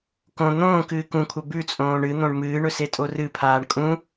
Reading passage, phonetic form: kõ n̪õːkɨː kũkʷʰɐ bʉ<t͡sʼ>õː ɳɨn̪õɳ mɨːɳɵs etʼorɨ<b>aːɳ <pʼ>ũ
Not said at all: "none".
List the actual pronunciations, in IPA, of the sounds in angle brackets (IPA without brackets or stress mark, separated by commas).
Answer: t͡sʼ, pʰ, kʼ